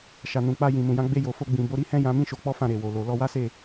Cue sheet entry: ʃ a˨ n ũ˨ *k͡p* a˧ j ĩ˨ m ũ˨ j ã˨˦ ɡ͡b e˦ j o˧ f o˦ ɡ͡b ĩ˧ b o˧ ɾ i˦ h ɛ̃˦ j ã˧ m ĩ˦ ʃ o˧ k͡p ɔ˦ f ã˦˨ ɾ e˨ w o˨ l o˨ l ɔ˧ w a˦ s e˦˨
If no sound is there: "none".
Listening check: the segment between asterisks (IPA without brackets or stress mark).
k͡p